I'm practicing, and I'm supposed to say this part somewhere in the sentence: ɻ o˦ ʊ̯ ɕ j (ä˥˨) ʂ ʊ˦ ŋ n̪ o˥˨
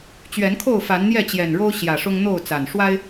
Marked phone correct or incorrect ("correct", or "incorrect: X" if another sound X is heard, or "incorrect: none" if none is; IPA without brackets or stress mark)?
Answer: incorrect: ä˨˩